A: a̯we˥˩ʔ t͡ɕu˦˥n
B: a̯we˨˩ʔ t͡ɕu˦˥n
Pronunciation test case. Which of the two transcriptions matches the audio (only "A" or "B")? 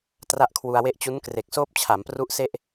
A